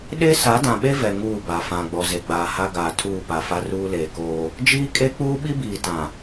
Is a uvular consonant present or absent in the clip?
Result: absent